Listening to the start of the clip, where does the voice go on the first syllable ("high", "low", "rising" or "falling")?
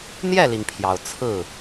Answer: falling